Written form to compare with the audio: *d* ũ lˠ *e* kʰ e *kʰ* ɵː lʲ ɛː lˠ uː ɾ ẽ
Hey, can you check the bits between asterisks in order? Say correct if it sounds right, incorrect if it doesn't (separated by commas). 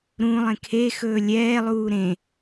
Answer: incorrect, incorrect, incorrect